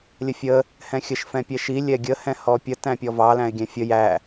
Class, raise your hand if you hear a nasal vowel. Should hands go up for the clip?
yes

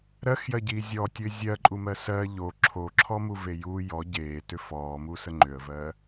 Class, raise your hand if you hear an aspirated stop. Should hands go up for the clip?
yes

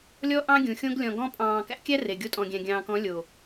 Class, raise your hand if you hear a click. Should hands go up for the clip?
no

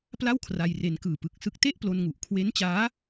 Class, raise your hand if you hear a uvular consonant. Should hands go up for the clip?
no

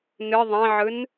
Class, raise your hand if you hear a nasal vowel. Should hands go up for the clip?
yes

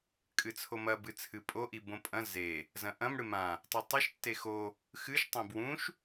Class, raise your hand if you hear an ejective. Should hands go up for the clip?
yes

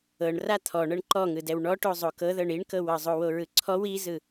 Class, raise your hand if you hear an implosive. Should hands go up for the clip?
no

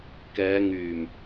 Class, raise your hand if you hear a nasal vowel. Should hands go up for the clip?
no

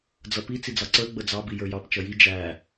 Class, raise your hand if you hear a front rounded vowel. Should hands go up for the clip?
no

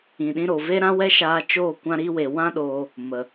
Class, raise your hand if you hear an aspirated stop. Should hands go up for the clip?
no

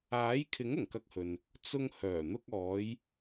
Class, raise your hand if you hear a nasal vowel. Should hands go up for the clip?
no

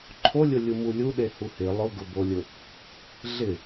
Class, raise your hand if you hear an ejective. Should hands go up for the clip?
no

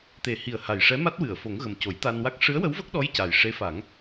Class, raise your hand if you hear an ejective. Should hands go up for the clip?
no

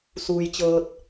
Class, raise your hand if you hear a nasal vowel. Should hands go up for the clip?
no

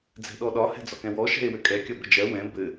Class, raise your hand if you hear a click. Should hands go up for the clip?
no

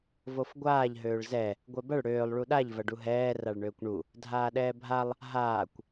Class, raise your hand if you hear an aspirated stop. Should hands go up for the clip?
no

